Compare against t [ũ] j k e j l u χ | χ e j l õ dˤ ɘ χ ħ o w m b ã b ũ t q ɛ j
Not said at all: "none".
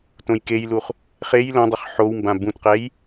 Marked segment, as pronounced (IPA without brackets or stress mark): õ